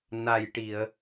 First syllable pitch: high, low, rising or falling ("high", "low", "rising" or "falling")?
low